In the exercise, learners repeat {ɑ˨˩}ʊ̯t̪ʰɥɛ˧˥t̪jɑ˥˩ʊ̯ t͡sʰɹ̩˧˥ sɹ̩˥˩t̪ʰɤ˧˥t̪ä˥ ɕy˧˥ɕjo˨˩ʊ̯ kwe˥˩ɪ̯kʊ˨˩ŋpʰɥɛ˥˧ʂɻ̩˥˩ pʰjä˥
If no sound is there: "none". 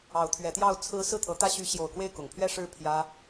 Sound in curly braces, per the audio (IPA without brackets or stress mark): ɑ˧˥